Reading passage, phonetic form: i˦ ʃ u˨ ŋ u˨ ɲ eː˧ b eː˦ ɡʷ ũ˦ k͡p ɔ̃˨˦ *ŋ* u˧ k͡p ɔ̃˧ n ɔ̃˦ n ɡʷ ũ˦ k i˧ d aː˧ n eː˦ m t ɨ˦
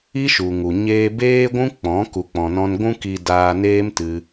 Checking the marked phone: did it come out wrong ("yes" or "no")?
yes